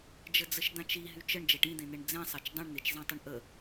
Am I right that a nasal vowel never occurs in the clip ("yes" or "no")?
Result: no